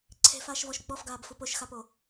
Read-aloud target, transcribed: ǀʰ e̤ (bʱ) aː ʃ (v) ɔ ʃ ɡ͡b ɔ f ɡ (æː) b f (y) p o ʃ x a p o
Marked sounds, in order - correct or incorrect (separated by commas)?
incorrect, correct, incorrect, incorrect